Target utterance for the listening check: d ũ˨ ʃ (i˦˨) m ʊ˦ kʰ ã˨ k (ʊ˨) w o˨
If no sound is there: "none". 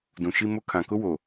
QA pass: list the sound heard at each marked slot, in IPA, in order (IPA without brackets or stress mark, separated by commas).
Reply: i˦, ʊ˦